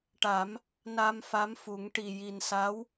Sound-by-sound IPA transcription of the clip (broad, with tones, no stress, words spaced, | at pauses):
ʈa˨˩˦m | na˧m fa˧˥mfu˨˩˦ŋ ʈi˨˩ji˨˩nsa˧˥w